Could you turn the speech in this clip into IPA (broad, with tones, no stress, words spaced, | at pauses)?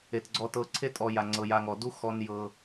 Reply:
e˩tɡ͡ǀɔ˨tɤ˨ ǀʰe˥tʼɔ˨ ja˩ ŋ͡ǀɤ˩ja˨ŋɔ˩du˥ xɔ˨n jɤ˩